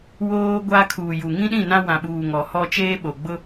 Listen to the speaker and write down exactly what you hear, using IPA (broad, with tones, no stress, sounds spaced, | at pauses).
w oː˦ ɡʷ a˦ kʰ uː˨ j u˨ ŋ ĩ˦ ɗ ĩ˦˨ n ã˦ w ã˨ ɓ uː˨ ŋ ɔ˨ h ɔ˦ t͡ʃ eː˦ ɓ o˨ ɡ͡b ʊ˦